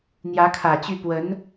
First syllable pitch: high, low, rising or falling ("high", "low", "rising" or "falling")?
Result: rising